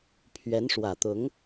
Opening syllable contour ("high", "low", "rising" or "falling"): rising